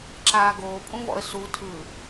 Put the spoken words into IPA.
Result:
ǁaːɡoːpʼũvɔ̰ə̯ su tʰɯ

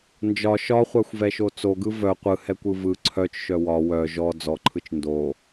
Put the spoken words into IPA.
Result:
nd͡ʒɒ ʃɒχʷaxʷvɛʃo t͡soɡɯ vœ qʷɯhɛkʷɯ vɯ ǀʰœt͡ʃʃœ wɒ wœ ʒɔ d͡zɔǃʰɯt͡ʃ ndo

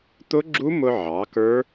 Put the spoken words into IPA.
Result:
t̪ʊ˦˥ɡ͡ǁu˦˥mʊ˧ʕɑ˩˧ kə˞˦˥

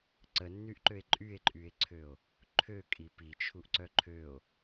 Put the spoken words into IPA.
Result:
ǀənːyʔǃøe̯ ǃʼye̯ǃʼye̯ǀʰøo̯ | ǃʰøkʼi pit͡ʃʰuʔǀœ ǃʰøo̯

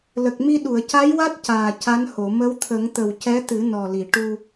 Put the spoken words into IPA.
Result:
lə˨˩k̚mi˧ ɗu˨˩˨ə̯ca˧˥jwa˦˥t̚ caː˨˩ca˧˥nho˨˩˨ mə˧˥wt̪ʰə˨˩˦ŋ t̪ə˨˩wcɛ˧˥t̪ɨ˨˩˦ nɔ˨˩li˨˩˨ ʈu˧

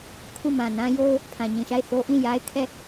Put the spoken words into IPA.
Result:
kʰu˦˨mã˨ nã˦jo˦ʊ̯ | pʰã˨ɲĩ˨ʃa˦˨ɪ̯ θo˦ʔĩ˦˨ja˦ɪ̯kʰɛ˦˨

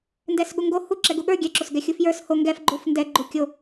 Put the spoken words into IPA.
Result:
ndɛsɠuŋɡo hu ǁɛɡuɠə˞ ɡʲɛǁosɡɛ xʲufjə˞s ho ŋɡɛfɡ͡ǃuf ndɛɡ͡ǃu kʲo

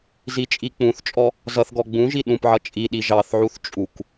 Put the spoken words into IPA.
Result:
zit͡ʃʼik͡pũθt͡ʃʼɔ | zʌθɡɔ ɡ͡bũʒi ɗũpʕʌ t͡ʃʼi ɗiʒɑθʕuθ t͡ʃʼuk

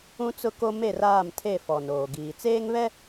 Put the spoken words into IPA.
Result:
ũ˦t͡sʊ˦ko˦ me˦˨raː˦˨mtʰe˦˨ fɔ˨noː˨ɡiː˨ t͡seː˦ŋβɛ˦

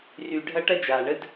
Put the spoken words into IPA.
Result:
ry˨ɖʱɐ˦ ʈɐ˦d͡ʒaː˩ɳə˦d

